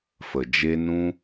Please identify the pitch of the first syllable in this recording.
low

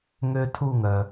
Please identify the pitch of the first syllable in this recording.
high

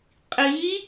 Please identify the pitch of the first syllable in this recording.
rising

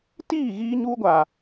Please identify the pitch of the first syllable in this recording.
falling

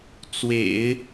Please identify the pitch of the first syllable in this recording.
low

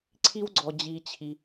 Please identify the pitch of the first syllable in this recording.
high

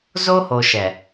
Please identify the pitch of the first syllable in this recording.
high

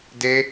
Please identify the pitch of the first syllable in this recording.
high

